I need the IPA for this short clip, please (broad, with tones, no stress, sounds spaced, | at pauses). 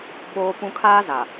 ɓ oː˨ p ũ˨ kʰ aː˦ z a˨